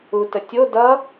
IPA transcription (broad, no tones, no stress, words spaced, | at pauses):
utətʲo dʌ